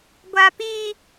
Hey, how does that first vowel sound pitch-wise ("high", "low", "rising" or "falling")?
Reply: high